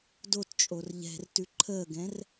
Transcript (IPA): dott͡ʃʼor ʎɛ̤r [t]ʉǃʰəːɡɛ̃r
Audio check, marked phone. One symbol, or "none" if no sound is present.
t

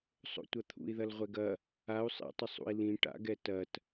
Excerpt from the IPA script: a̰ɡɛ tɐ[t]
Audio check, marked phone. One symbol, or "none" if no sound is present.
t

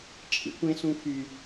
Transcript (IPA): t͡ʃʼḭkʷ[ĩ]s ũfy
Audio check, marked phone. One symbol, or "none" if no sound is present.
ẽ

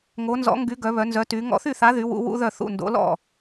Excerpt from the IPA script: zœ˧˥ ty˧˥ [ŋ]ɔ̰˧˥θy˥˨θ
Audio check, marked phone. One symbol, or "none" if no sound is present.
ŋ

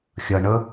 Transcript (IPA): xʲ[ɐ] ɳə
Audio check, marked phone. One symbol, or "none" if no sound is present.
ɐ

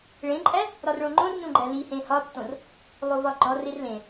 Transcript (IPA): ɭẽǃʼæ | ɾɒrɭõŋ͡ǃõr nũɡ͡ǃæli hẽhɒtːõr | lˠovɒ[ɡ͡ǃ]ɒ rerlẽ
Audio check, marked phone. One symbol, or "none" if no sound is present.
ɡ͡ǃ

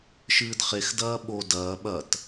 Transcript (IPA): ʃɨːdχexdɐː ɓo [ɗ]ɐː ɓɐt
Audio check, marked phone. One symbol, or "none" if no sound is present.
d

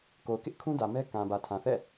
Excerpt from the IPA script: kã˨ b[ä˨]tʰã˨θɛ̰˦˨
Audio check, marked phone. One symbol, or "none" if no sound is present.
ä˨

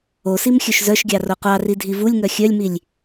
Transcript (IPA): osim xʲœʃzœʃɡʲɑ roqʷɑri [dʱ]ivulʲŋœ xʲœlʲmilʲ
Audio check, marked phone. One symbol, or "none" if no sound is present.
dʱ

